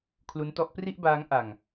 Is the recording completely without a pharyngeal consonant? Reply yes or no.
yes